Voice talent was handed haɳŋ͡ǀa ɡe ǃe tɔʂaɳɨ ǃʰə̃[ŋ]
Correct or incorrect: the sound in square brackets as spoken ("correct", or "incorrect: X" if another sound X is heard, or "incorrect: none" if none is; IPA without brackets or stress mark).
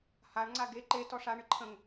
correct